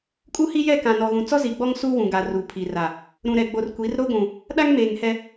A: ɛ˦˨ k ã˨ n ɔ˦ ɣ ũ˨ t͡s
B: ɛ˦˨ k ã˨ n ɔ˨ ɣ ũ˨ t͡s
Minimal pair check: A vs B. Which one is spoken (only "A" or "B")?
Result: B